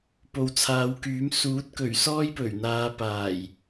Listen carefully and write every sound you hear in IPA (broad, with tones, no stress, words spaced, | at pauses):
po˨wt͡sʰaː˨˧wkyː˨˥m suː˨˥t̚kɵ˨˩ɥ sɔː˥jpɵ˨˩ɥn̪aː˨˧ paː˨˩j